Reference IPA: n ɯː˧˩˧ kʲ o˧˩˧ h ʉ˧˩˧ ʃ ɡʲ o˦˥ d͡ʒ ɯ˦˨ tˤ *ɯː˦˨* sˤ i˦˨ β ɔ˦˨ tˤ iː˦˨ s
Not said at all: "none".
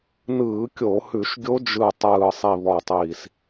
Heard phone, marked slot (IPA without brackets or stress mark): ɯː˦˨